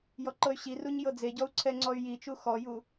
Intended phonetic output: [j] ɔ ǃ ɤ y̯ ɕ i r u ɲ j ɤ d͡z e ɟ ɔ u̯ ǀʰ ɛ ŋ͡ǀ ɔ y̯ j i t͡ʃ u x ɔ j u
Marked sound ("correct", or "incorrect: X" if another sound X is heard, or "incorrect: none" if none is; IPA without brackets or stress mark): correct